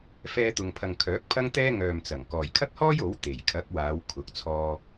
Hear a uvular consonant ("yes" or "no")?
no